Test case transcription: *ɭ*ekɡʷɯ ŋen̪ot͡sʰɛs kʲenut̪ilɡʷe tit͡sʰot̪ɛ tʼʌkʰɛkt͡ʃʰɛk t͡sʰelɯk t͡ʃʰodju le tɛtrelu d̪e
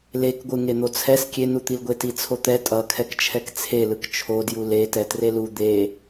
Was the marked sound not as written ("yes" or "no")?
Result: yes